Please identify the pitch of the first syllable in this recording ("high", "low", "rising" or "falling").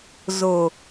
low